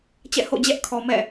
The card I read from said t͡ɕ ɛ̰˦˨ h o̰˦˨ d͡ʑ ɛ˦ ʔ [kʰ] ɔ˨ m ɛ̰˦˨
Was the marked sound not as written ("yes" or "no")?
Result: no